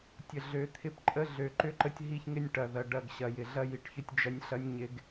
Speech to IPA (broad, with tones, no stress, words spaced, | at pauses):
tʲə˨ɮø˨˦t̪ʰɪ˦˨p ǃʼə˦ɮø˨ ǃʏ˦ǃə˦tʲ ɦi˦çŋɪ˦nʲʈɐ˨ ðɐ˨ ɖɐ˦˨ɡɕɐ˨jɪ˨ ɮɐ˦ji˨ʈçʏ˦tʲd͡ʒɐ˦nʲ ɬɐ˦nʲɲɪ˦ɡ